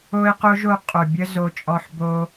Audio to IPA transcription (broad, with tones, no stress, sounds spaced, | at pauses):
o˦ ɪ̯ q o˦ ʒ o˧ qʼ o˨ bʲ ə˦ z o˧ t͡ʃʼ ɔ˧ ħ b o˦